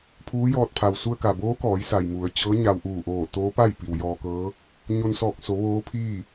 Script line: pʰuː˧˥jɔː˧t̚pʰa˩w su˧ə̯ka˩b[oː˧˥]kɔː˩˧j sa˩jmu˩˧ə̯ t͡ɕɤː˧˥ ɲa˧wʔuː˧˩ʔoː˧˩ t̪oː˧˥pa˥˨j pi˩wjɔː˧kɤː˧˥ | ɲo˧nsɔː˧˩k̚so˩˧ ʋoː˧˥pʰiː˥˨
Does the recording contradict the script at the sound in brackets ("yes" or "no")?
no